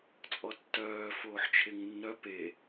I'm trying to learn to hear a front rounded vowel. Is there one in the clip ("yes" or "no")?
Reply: yes